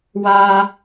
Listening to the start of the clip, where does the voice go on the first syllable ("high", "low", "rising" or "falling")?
high